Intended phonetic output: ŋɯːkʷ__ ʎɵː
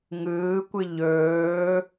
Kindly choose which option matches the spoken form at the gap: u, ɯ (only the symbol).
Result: ɯ